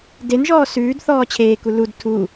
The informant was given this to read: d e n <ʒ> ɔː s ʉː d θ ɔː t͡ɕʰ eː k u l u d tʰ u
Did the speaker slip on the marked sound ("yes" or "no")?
no